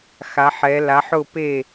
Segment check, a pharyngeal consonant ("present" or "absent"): present